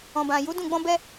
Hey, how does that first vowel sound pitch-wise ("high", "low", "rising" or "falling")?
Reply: low